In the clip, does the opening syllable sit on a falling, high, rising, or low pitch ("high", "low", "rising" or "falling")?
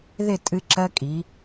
falling